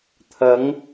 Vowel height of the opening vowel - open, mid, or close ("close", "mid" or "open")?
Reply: open